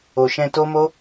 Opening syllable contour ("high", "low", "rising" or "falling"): low